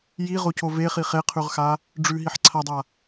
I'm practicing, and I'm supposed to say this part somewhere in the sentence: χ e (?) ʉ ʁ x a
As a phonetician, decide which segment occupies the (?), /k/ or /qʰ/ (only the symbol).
qʰ